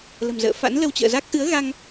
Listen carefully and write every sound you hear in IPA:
l ə̤˨˩ m z ə̰ː˧˨ f a̰˧˥ n l ə˧ w t͡ɕ ə̰ː˧˨ z a˦˥ k̚ ʔ ɨ˨˦ ə̯ ɣ a˧ ŋ

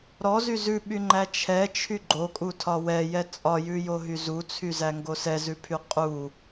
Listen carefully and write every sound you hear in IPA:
ɾ ɔ z y z ʉ ɓ y ŋ͡ǃ æ t͡ʃʰ ɛ t͡ʃʰ y ɡ͡ǃ o kʼ u tʰ ɒ w ɛ j ɛ t͡sʼ ɒ j ʉ j o ɦ y z u t͡sʰ y z æ ŋ ɡ o s ɛ z ʉ pʰ y qʼ u

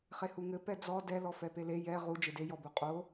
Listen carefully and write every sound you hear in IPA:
χ e h u ŋ ɘ p ɛ d͡z ɔ d ɛ l ɔ f ɛ p e l e j ɛ ʁ u d͡ʒ e d e j ɔ b u qʼ o

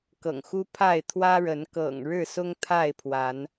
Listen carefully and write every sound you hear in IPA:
k ɤ̰˨˩ ŋ x u˦ pʰ a˥˨ ɪ̯ t̪ʰ w ä˦ ɻ ə˨˦ n k ɤ̰˨˩ ŋ ɻ ɻ̩˥˨ s ʊ˦ ŋ t̪ʰ a˥˨ ɪ̯ pʰ w a˨˦ n

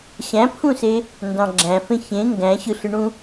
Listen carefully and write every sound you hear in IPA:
ɕ æ̃ pʰ ũ s e | n d ɑ̃ ɡ͡ǁ æ̃ f ẽ ç ẽ ŋ ɡ æ̃ ɕ ɯ ɬ ɯ ɳ ũ

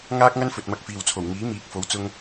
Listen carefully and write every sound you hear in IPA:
ŋ aː˥ k̚ ŋ ɐ˥ n f ɵ˨ t̚ m ɐ˧ k̚ f iː˨ w t͡sʰ o˨˩ w ŋ iː˨˥ m iː˨˥ k̚ f o˨˥ w t͡s ʊ˥ ŋ

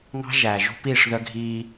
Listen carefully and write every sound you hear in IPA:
ŋ ɑ̤˦ ʒ æː˨ ʒ ṳ˦ p iː˦˨ ʂ ð œ˦ ɡʱ iː˦

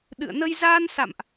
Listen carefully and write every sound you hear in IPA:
ɗ ɨ̰˧˨ ə̯ n ə˧ j z aː˧ n s a̰˧˨ m ʔ

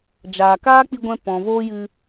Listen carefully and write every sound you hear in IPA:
d͡ʒ aː˨ k aː˦ k͡p i˧ ɡʷ ɛ̃˧ p ɔ̃˨ v oː˦ j ɨ˧

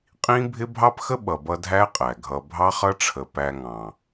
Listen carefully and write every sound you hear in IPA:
qʼ ĩ˦ bʱ ɪ˦ bʱ ɑ˦ p x ə˦ ɓ ʌ˨ b ʌ˧ dʱ æ˦ qʼ æ˨ ɡʱ ʌ˨ bʱ ɑ˦ χ ʌ˦ ʈ͡ʂʰ ə˨ p æ˧ ŋ ɑ̃˨

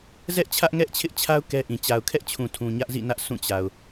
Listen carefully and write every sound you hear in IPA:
z ɛ˦ ʔ t͡ɕʰ ä˦ ʔ ŋ ɛ˦ ʔ t͡ɕʰ ɪ˦ ʔ t͡ɕʰ a˦ ʊ̯ k ɛ˦ ʔ ĩ˨ t͡ɕ a˨ ʊ̯ kʰ ɛ˦ ʔ t͡ɕʰ ũ˨ tʰ ũ˨ ɲ ä˦ ʔ z ḭ˦˨ n ä˦ ʔ s ũ˦˨ t͡ɕ a˨ ʊ̯

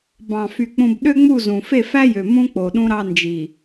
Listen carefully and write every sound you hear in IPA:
b ɑ̃˨ f y˨ k͡p ũ˨ b ɗ ø˦ ŋ͡m u˦˨ z ũ˨ f e˦˨ f æ˦ j ø˨ m ũ˦ k͡p o˨ ɗ ũ˦ ɾ ɑ˦ n d͡ʒ i˨

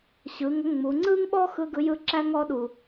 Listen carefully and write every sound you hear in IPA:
ɕ ɯ˩˧ ŋ ə˧˥ ŋ͡m u˩˧ ŋ͡ǀ ɯ˥ ŋ ɓ ɔ˥ x ɯ˥ ɡ ɯ˧˥ j ɯ˥ ǁ æ˥ ŋ ɔ˧˥ ɗ u˩

